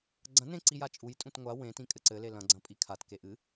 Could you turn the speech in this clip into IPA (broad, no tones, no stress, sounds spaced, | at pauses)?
ɡ͡ǀ ɐ̃ n ẽ ǀ i j a t͡ʃʼ u j tʼ ũ t ŋʷ a w ẽ t ĩ kʼ ɘ ǀ ɘ l e l ɐ̃ ɡ͡ǀ ɐ̃ pʼ i kʰ a t k e ʔ ɨ